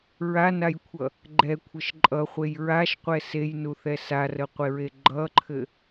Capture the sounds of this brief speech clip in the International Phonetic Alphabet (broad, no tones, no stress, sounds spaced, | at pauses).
ɹ a n a j kʷʰ ʌ | ɡ͡ǃ ɛ kʷʰ ə ʃ ǃʼ ʌ χʷ e j ɹ a ʃ qʷ ɛ s e j n u θ ɛ s a r ə qʷ e ɹ e ɡ͡ǃ ʌ ǃʰ ɘ